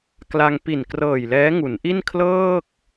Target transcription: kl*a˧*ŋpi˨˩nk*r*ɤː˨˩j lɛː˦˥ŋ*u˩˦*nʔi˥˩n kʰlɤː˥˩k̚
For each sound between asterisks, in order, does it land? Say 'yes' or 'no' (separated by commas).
yes, yes, yes